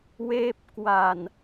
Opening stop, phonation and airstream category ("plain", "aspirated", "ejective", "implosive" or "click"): plain